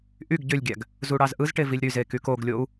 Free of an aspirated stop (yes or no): yes